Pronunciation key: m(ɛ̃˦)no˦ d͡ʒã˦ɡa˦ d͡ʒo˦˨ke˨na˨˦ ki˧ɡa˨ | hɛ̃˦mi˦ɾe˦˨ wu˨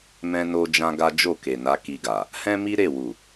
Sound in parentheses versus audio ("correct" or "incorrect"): correct